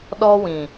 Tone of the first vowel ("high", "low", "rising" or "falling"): high